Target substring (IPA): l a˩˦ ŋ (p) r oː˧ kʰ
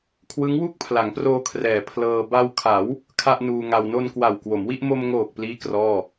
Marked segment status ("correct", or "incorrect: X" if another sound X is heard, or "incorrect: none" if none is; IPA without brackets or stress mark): correct